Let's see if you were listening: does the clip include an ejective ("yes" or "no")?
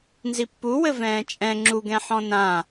yes